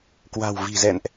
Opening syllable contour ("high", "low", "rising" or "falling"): low